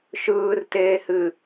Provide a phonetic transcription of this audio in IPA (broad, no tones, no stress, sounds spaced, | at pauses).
ʃ ɯː r t eː h ɨ